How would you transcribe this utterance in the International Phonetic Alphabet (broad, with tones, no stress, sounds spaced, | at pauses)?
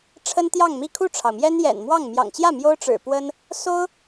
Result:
ʈ͡ʂʰ ə˥ n t̪ j ɑ˥˧ ŋ m i˥˧ kʰ u˥˩ ʈ͡ʂʰ ɑ˩ ʊ̯ m j ɛ˥ n j ɛ̰˨˩ n m w ɑ˥˩ ŋ m j ɑ̰˨˩ ŋ t͡ɕ j ä˥˩ m j o˥ ʊ̯ ʈ͡ʂ ɻ̩˨˩ p w ə˥ n | s o˥ ʊ̯